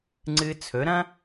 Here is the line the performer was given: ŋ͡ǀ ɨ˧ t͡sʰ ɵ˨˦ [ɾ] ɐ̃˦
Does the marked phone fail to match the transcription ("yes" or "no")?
no